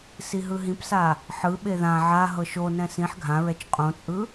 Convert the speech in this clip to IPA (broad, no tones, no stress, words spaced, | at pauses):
siɦɯɦĩpsa | ħɯ ɓeðã ʕa ɦɤʃonɛ̃ sĩħ ɡʱãɹɛt͡ʃ qʼõt͡sʼɯ